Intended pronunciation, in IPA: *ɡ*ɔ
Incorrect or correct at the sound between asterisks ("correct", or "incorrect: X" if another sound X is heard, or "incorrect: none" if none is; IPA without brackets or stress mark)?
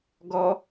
correct